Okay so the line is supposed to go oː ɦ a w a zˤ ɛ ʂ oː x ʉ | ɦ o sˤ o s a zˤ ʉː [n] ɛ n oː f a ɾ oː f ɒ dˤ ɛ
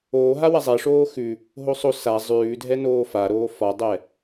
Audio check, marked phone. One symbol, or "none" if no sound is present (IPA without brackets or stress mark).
dʱ